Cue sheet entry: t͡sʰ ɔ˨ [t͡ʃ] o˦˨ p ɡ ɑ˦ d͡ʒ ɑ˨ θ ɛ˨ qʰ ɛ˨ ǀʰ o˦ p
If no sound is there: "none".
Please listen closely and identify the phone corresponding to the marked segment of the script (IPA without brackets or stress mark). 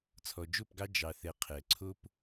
d͡ʒ